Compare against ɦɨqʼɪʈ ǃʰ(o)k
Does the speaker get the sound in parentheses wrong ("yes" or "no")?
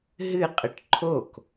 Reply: no